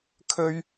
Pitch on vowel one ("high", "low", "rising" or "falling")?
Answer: high